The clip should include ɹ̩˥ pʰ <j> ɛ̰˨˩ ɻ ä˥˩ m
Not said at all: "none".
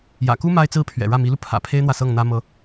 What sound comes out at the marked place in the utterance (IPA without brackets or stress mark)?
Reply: ɥ